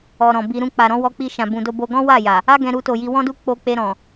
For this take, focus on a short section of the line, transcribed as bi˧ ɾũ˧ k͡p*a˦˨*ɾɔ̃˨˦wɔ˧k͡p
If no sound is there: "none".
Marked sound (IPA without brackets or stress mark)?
a˨